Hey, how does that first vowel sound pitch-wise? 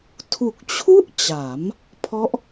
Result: low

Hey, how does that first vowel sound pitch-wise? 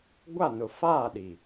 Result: falling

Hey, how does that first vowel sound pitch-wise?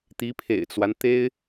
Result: rising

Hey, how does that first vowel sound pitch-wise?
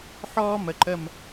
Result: high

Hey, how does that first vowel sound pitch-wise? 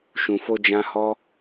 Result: low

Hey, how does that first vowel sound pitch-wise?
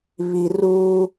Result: low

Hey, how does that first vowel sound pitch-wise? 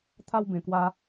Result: high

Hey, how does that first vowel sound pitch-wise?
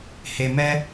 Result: low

